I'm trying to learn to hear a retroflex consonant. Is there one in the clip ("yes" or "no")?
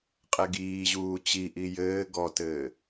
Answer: no